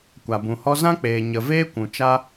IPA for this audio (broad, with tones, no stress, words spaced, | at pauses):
kʷa˨bũ˨hɔ˦ zã˦k͡peː˨ ɲə˨ veː˦kʷũ˨ t͡ʃa˦